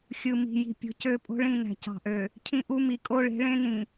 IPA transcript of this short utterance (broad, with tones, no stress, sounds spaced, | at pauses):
xʲ ɯ˨ m i̤˨ j i̤˨ pʲ o̤˨ c ø˦˨ pʼ o̤˦ ɭ ĩ˦˨ n æ̤˨ c ɑ̤˨ ʔ ø˨ | cʰ ĩ˦ ʔ u˦ m i˨ kʼ o˦ ɭ e̤˨˦ ɭ ẽ˦ n ĩ˨